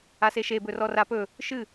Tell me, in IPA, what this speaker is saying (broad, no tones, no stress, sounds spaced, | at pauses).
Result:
a s e ʃ e b ɵ r ɔ r a p ɵ | ʃ ɨ